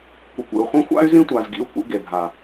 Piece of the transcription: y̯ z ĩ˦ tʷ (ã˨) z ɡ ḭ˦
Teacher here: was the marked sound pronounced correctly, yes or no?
no